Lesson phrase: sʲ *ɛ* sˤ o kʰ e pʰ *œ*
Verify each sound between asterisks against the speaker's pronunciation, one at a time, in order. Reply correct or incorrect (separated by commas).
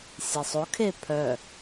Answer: correct, correct